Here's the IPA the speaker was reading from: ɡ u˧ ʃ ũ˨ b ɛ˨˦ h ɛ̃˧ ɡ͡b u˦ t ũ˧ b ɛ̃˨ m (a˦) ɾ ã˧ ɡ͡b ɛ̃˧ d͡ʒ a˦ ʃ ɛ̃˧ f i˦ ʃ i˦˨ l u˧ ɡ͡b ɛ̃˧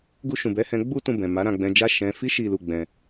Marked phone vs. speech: incorrect: a˨˦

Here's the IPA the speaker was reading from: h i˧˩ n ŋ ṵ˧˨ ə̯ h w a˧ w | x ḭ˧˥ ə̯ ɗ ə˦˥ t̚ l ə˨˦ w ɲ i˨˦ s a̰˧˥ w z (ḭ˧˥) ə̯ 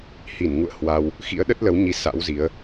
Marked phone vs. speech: incorrect: i˨˦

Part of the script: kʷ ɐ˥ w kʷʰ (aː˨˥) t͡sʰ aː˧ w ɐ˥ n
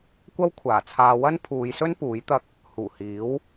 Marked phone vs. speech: incorrect: aː˨˩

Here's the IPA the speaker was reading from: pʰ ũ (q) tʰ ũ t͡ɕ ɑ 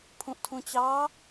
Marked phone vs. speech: incorrect: ʔ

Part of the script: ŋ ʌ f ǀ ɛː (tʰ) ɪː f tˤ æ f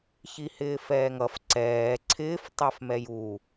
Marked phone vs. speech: incorrect: ǀʰ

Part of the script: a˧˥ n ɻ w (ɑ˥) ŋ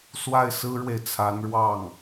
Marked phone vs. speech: incorrect: ɑ˥˩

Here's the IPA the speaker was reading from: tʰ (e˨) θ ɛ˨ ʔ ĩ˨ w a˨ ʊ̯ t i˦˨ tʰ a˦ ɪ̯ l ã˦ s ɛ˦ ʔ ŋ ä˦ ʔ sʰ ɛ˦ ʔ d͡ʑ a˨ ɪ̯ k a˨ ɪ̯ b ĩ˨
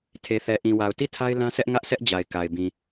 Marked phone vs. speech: correct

